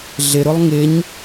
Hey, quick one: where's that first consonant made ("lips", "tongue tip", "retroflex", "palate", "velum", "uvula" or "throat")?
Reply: tongue tip